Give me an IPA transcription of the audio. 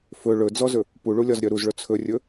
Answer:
fɵ ɭɵd͡zɔzɵ | puɭulʲɒzɾʲœ ɾuzɭɵ t͡sʰɵrʲɵ

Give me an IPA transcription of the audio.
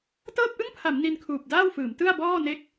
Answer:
tɤː˥˩p̚ʔɯ˥˩ŋpʰa˩˦m ni˧nkʰuː˨˩p̚daː˥˩wfɯː˩˦m tɯ˥˩a̯bɔː˥˩ ne˦˥k̚

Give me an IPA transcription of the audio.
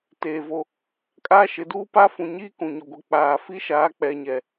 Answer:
teː˨vo˦ | kʼaː˦ʃɪ˨˦duː˦pa˦ fũ˨ɲiː˦ kũ˨ɲʊ˨ɡʷi˨ k͡paː˨ fi˦ʃaː˨˦ k͡pɛ˨ɲɛ˨

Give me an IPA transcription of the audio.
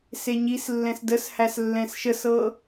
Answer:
seɲislːɛ̃s dəshæs lːɛ̃sʃəsɤ

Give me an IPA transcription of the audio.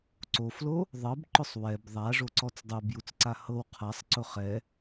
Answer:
ǀoflo | ðˤɤbǃʊsˤ wɛb ðˤaʐoǀɔt͡s dˤobjut͡sǀa hɤw qʰasˤǀʊ χɛ

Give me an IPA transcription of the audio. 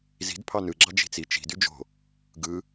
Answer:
zi̤d pʰɑnɯɡ͡ǁɑ d͡ʒi̤t͡si t͡ʃi̤dy d͡ʒo̤ | ɡɯ

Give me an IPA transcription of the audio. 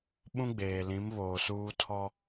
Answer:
ɓũ˦ɡ͡beː˨ lĩ˨˦mβoː˨ suː˦tʰɔ˦

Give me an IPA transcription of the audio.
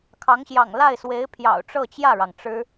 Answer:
kʰɑ˧˥ŋɕjɑ̰˨˩ŋ la˥˩ɪ̯swe˧˥ɪ̯ pʰjɑ̰˨˩ʊ̯ ʈ͡ʂɤ˥˧t͡ɕjä˥˩ɻɑ˩ŋ ʈ͡ʂɻ̩˥

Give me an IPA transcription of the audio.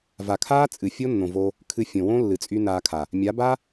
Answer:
va˨kʰaː˦t͡sʼɨ˨ fʲo˦nːõ˨ vo˧ | kʰɨ˧ fʲõ˨wõ˦ lːɨ˨t͡sʼy˧ naː˧kʰa˨ | mʲa˨˦ba˦

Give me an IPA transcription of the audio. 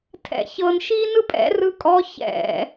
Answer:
tʰɛ̰çɤn ʃiːnɯpʼɛ̰ rɯkʼɔ çɛ̰

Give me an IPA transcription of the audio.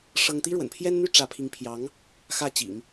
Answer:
ʂɤ˥ŋ t̪i˥ɻwə̰˨˩npʰjɛ˥nn̪y˥ ʈ͡ʂä˧˥pʰi˧˥ŋ pʰjɑ˧˥ŋ | xä˥˩t͡ɕḭ˨˩˦ŋ

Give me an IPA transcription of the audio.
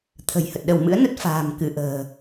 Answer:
t̪ʰə̤˨˩jhə˨˩t̚ ɗə˧˩wmɨ̰˧˥ə̯ nə˦˥t̚fa̤ː˨˩mkɨ˧˩ʔə̤ː˨˩

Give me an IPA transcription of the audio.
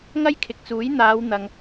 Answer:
ŋɐ˥jkʰɪ˨k̚t͡suː˨˥j n̪aː˨˧w n̪ɐ˨ŋ

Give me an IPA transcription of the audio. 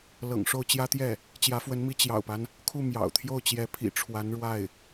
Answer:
lɤ̰˨˩ŋʂo˥˩ʊ̯ t͡ɕjä˥t̪jɛ˥˩ | t͡ɕjä˧˥fwə˧˥nmi˧˥ t͡ɕjɑ̰˨˩ʊ̯pa˦n | kʰu˥˩ mjɑ̰˨˩ʊ̯t̪ʰjo˥˩ʊ̯ t͡ɕjɛ˧˥pʰḭ˨˩ʈ͡ʂʰwa˧˥nɻwa˥˩ɪ̯

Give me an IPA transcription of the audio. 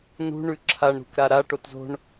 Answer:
nṳɳʉ ǁʰaɳɾṳkɾa ɾa ʈotzo̤ɳ

